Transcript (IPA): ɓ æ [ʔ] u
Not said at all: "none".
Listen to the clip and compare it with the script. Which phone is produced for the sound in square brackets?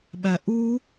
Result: ʔ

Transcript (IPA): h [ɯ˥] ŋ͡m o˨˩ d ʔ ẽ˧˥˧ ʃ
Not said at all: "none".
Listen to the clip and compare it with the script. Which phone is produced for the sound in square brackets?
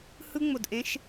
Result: ɯ˥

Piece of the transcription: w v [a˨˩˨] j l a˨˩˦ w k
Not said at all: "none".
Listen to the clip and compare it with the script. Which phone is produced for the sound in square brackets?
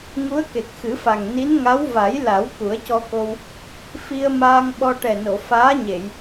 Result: a˨˩˦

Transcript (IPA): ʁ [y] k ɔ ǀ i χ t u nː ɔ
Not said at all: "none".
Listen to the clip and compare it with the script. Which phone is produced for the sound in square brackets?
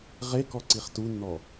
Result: e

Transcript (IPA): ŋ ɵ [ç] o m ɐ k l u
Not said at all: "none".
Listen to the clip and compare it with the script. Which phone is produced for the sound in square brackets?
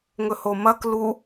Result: h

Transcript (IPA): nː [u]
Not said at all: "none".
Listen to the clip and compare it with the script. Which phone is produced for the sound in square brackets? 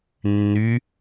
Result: y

